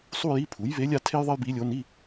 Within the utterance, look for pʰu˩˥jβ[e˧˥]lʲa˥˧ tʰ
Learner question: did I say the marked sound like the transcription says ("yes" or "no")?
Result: yes